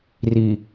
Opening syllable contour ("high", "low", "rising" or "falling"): low